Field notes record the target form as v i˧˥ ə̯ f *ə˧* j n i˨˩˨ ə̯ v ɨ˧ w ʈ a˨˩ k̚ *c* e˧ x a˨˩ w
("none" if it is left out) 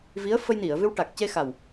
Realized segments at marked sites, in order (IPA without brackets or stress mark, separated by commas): ə˧, c